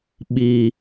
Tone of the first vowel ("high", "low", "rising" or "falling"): low